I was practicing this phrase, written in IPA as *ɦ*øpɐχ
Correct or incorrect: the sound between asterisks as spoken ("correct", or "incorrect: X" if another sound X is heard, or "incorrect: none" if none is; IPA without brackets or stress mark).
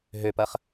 correct